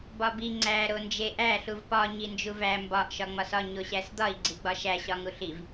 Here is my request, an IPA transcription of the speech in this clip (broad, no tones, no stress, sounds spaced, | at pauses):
b ɒ b i ŋ͡ǀ æ ɾ o n d͡ʒ e ʔ æ ɬ u v p ɒ ɲ i n d͡ʒ u v æ m b ɒ ʔ ʃ ɒ ŋ͡m ɒ s ɒ ɲ o ɕ æ s d̪ ɒ i̯ ɡ͡ǀ i ɡ͡b ɒ ʃ æ ɕ ɒ ŋ u ɬ i v